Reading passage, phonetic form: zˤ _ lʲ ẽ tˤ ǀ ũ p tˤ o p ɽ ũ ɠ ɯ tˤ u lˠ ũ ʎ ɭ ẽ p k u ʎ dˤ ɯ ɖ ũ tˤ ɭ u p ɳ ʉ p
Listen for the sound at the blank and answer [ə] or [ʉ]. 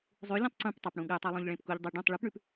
ʉ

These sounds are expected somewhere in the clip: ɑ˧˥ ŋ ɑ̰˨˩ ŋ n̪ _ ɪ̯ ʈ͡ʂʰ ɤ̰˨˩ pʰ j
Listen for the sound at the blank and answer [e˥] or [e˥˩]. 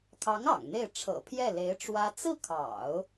e˥˩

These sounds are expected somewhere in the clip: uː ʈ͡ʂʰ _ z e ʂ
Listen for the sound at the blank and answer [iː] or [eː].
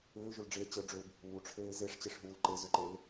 eː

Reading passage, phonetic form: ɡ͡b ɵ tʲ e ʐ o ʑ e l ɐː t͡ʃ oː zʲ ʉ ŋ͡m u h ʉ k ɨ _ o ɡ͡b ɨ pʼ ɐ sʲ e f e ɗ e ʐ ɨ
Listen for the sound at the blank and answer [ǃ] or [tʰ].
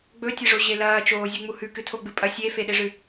tʰ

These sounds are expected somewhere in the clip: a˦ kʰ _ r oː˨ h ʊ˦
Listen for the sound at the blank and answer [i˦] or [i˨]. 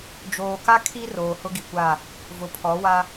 i˦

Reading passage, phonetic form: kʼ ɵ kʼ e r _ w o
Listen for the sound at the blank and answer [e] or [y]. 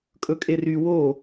y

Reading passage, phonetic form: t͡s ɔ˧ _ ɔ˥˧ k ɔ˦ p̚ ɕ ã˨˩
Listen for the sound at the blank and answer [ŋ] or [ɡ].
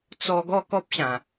ɡ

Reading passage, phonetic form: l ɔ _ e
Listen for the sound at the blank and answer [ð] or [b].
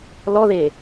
ð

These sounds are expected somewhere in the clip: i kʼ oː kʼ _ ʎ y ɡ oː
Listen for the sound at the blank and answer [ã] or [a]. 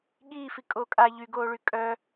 a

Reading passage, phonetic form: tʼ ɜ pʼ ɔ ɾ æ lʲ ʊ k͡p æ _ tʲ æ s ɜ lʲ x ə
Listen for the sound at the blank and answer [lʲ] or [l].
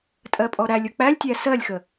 lʲ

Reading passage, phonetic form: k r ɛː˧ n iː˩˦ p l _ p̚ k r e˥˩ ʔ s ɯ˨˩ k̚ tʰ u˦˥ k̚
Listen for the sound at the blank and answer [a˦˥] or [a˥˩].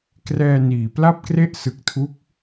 a˥˩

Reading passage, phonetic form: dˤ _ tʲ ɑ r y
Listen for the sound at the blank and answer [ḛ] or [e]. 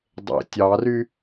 ḛ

